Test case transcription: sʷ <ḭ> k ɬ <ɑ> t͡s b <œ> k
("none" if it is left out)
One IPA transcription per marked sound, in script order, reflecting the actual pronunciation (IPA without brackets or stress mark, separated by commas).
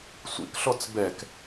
ḭ, ɔ, ɛ